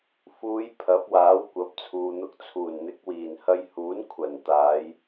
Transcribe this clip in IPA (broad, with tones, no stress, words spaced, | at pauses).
fuː˨˧j pʰɐ˨˥p̚waː˨˥w kʷɐ˨˥p̚t͡sʰuː˨n̪ʊ˧k̚ t͡sʰuː˨˩nn̪ɪ˨˥k̚wiː˨˩n hɐ˧jhuː˨˥n kʷʰɐ˨˩nt̪aː˨˧j